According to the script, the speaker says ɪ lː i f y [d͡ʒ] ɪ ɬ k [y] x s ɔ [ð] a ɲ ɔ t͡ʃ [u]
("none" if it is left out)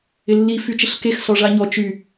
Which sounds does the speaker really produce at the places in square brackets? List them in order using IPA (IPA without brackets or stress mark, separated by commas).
t͡ʃ, e, ʐ, y